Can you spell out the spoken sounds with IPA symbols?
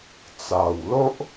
t͡s a˨˩ w l o˦ ʔ

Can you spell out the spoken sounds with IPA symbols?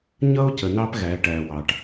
ɲ ʌ˦ o̯ c ə˨ n ɑ˦ p ɣ æ˨˦ ʈ æ˨ w ɑ˨ ʈ

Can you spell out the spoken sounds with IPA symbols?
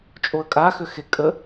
t͡ʃʼ o ə̯ kʼ a x ø x e kʼ ə

